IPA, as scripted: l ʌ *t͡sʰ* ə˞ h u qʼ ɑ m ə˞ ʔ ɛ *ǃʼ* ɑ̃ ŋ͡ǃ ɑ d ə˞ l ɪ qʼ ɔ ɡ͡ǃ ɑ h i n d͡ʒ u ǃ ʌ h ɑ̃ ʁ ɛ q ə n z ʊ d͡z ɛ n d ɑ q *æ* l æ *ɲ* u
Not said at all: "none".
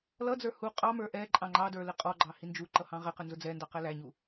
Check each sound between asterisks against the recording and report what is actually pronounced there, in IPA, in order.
d͡z, ǃʼ, æ, ɲ

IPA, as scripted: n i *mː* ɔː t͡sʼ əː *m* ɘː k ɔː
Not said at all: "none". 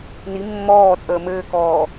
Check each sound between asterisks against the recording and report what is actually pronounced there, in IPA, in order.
mː, m

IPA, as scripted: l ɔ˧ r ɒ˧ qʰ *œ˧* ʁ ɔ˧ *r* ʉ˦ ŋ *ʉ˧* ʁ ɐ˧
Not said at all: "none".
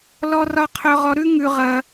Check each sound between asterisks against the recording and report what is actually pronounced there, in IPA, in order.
œ˧, ɾ, ʉ˧

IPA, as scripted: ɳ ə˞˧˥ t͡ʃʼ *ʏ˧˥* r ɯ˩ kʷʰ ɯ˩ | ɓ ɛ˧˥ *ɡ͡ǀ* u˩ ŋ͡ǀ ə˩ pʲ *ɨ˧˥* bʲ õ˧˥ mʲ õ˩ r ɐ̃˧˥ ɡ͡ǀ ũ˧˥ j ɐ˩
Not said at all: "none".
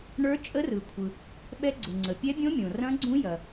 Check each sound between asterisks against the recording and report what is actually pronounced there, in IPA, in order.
ə˧˥, ɡ͡ǀ, ɛ˧˥

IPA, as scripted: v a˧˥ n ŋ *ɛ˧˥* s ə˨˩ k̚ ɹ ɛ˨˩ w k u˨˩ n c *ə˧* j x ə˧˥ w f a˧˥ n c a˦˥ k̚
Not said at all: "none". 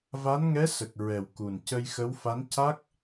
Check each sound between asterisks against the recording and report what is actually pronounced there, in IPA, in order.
ɛ˧˥, ə˧

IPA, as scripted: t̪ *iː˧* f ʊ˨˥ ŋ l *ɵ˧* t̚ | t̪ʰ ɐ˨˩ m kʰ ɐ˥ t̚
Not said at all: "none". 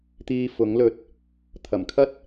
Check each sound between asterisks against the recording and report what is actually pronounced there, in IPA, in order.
iː˧, ɵ˧

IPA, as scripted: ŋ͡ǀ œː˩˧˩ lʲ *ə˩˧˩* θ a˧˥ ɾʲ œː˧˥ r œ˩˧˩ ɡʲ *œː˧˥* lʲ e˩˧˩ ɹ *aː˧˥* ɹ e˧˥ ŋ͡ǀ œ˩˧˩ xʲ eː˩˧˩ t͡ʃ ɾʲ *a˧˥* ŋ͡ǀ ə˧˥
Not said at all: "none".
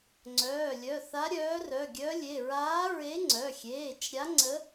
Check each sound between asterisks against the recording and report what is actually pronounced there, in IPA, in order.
œ˩˧˩, œː˧˥, aː˧˥, a˧˥

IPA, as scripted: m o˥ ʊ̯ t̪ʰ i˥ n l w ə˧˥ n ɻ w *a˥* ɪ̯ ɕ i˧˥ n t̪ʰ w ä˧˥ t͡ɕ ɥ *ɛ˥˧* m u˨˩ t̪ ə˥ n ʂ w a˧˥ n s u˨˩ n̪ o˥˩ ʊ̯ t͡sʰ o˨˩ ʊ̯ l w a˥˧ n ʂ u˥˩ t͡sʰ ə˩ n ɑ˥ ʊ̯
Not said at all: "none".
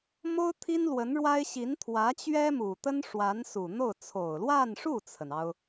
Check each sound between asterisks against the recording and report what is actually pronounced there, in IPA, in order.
a˥, ɛ˥

